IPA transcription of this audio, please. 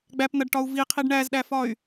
ɡ͡b æ p n̪ ɐ ɖ ʈ ɒ u̯ v i qʰ i ɖ ɳ æ z ɗ æ f ɒ y̯

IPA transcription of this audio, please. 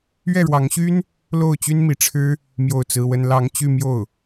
ɥ ɛ˥˩ ɻ w ɑ˧˥ ŋ ɕ y˥ n | l o˥˩ ʊ̯ t͡ɕ y˥ n m i˧˥ ʈ͡ʂʰ ɻ̩˥ | m j o˥˩ ʊ̯ t͡s ɹ̩˥ w ə˥ n l ɑ˧˥ ŋ t͡ɕ y˥˧ m j o˥˩ ʊ̯

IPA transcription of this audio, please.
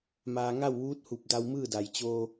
m aː˧ ŋ a˥˨ w ʋ uː˧˥ t̚ h u˧˩ p̚ d a˧ w m ɯː˥˨ d a˩ j t͡ɕ oː˧

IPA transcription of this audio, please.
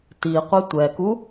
t i qʷ e tʷ ɛ k u

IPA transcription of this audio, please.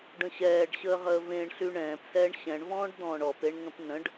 ɖ ə̃ ɕ ɛː ɖ ɕ əː ʁ əː v ẽ ɳ ɬ y ɳ ɛ̃ː p s ɛː ɳ ɕ ɛ̃ ɳ v ɔ̃ː ɖ d̪ ɔ̃ː ɳ ɔ p e ɳ ŋ ə̃ p n ə̃ ɖ

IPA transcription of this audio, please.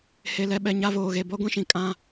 h e˨ l ɛ˨ ɓ ɛ˨ ɲ a˨˦ v oː˨ ɣ e˨ b ɔ˦ ɡʷ ĩ˦ ʃ ĩ˨ kʼ ã˦

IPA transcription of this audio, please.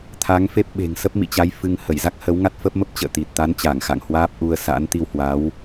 t̪ʰ a˨˦ ŋ f e˦˥ p̚ ɓ e̤˨˩ ŋ s ə˦˥ p̚ m ḭ˧˨ t͡ɕ a˨˦ j f ɨ˧ ŋ h ə˧˩ j z a˦˥ k̚ h ə˨˦ w ŋ a˦˥ t̚ f ə˦˥ p̚ m ə˦˥ p̚ t͡ɕ ə̰ː˧˨ t̪ i˨˩ t̚ t̪ a˨˦ n t͡ɕ a˧˩ ŋ x a̰˧˨ ŋ h w aː˦˥ p̚ ʔ u˧ ə̯ s a̰˧˥ n t̪ i˧ w h w a˨˦ w

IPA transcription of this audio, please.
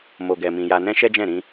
m o˨ ɡ ɛ˨ m ĩ˨ j a˧ n ɛ̃˦ ʃ ɛ˦ d͡ʒ ɛ̃˦˨ ɾ ĩ˧

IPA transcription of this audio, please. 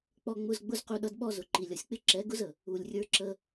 k͡p ɔ˧ ŋ͡m ʊ˧ z ɡ͡b ʊ˦ z q u˧ ɗ ʌ˦ d ɓ ɔ˦ z ʊ˨ ǃ i˨ lʲ ʌ˨ sʲ k͡p ɪ˦ ǁ ɛ˨˦ ɡ ʊ˦ z ə˨ | u˨ lʲ rʲ ə˞˦ ǁ ə˦

